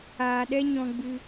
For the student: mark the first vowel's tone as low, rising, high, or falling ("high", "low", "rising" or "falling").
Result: low